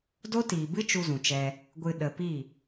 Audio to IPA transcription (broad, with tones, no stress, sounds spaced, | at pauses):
d o˦ t iː˨ b ɨ˦ t͡ʃ u˧ z ũ˨ t͡ʃ ɛ˧ | ɡʷ ɨ˨ ɗ ə˨ p i˦˨